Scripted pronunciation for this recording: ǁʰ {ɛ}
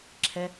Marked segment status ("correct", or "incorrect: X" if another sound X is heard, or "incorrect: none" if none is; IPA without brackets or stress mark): correct